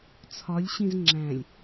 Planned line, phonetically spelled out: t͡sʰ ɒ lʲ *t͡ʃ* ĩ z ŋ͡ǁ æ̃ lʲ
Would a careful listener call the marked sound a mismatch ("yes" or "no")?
yes